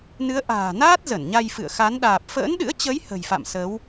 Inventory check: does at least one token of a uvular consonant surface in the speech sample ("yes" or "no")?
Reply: no